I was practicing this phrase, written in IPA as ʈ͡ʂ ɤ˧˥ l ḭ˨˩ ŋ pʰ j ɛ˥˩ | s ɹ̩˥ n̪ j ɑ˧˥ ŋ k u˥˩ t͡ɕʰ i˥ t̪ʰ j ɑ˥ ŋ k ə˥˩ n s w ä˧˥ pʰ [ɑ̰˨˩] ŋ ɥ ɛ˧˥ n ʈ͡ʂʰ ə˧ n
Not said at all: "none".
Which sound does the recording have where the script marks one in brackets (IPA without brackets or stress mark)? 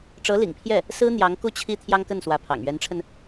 ɑ̰˨˩